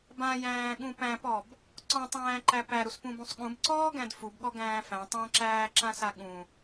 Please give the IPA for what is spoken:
b ã j æ̃ː ɠ ũ p æ̃ p ɔ b | ǀ ɔ̃ tˤ æ̃ː ǃ æ p æ ɾ u s p ũ b ũ sˤ ɠ ũ b ǀ ɔː ɡ æ̃ d f u b ɠ ɔ ɡ æ̃ː f æ̃ tˤ ã ǁ æː ǁ ã s a ɠ ũ

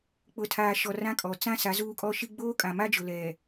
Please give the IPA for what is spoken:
k͡p ʊ˨ tʰ aː˨ ʃ ɔ˨ r ã˦ kʼ ɔ˨ t͡s ã˦ s a˨˦ z uː˦ kʼ ɔ˦ ʃ i˦ ɡ͡b oː˦ kʼ ã˨ m a˦ d͡ʒ ʊ˨ l ɛ˨

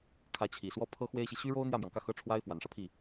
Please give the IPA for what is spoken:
kʰ ä˧˥ t͡ɕʰ i˨˩ s w ɔ˥˩ pʰ ɤ˥ x w e˥ ɪ̯ ɕ i˨ ɕ y˥ ɻ o˥ ʊ̯ n̪ j ä˥˩ m j ɑ˩ ŋ k ä˥˩ x ɤ˥ ʈ͡ʂʰ w a˥ ɪ̯ f w a˨˩ n ʂ ä˦ pʰ i˥˩

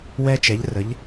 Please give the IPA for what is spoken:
w ɛ˧ t͡ʃ ɛ˩˧ ʎ r ə˩˧ ʎ

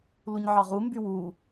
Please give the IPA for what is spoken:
l u ɲ ʕ ɑ ʁ u m b y w uː

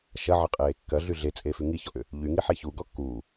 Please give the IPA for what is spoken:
ʃ ɐ ʕ ʌ qʼ eː kː ɐ ɮ y ɮ e t͡sʼ eː f y ŋ i ç ɔ ʔ ʏ | ʎ y ŋ i ħ e ç u ɡ ɔ kː uː

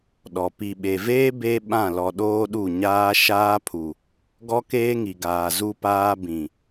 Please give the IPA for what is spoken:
ɗ ɔ˨ p i˨ ɓ e˨ v eː˦ b e˦ ɓ ã˦˨ l ɔ˨ ɗ oː˦ ɗ u˦˨ ɲ aː˦ ʃ aː˦ pʰ u˨ | ɡ ɔ˦ k eː˦ ŋ i˨ ɡ aː˨ z u˦ p aː˦ b ĩ˨

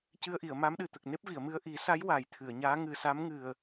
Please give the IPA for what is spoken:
c ɨ˧ ə̯ ʔ i˨˩˨ ə̯ m a˧˥ m ɗ ɨ˨˩ t̪ ə˨˩ k̚ n e˦˥ p̚ v i˨˩˨ ə̯ m ɨ˧ ə̯ ʔ i˨˩˦ s a˧˥ j w a˨˩˦ j t̪ʰ ɨ˨˩˨ ə̯ ɲ aː˧˥ ŋ ɨ˨˩ s a˧˥ m ŋ ɨ˨˩ ə̯

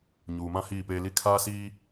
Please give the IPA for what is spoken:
ɲ uː˨ m ã˦ h iː˦˨ p eː˦ l i˦ kʰ aː˦ s iː˦

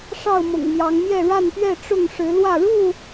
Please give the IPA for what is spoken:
ʂ ɑ˥˨ ʊ̯ m ʊ̰˨˩ ŋ m j ɑ˨˦ ŋ m j ɛ˥˨ ɻ a˥˨ n p ɥ ɛ˥˨ ʈ͡ʂ ʊ˥˨ ŋ ʂ ɻ̩˨˦ l w ä˥˨ ɻ u˥˨

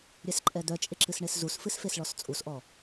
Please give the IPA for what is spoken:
ɾʲ ɛ s ǃʼ ɛ d̪ œ t͡ʃʼ ɪ ǁ ɨ s ɳ e s z u s f ɨ s f e s ɭ ɔ s t͡sʼ u s ʔ ɔ

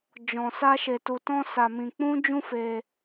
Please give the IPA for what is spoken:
d͡ʒ ɔ̃˧ s a˦ ʃ e˧ t u˧ t ɔ̃˦ s a˧ m ĩ˧ k͡p ũ˦ d͡ʒ ũ˦ f e˧

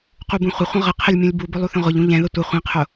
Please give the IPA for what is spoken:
q u b ũ χʷ ə χʷ ə̃ ʁ ə qʰ ɪ lʲ mʲ ũ lʲ b u b ʊ lˠ u θ ə̃ ʁʷ ɪ ʎ ũ ʎ ɛ̃ ð ə tʷ ə χʷ ĩ qʰ ʊ

